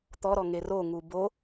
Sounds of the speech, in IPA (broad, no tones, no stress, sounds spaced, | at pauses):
t̪ ɔ ɾ ɔ ŋ e r o ŋ u b o